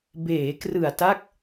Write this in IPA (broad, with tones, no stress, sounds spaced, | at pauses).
b eː˩˦ k r ɯ˨˩ a̯ t a˦˥ k̚